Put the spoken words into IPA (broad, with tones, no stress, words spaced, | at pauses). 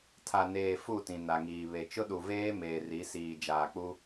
tʰa˨neː˨ fu˦˨ tĩ˨na˨ŋiː˨βe˨ t͡ʃʊ˦ɗu˨veː˦ meː˨ ri˨˦siː˨d͡ʒaː˨k͡pu˦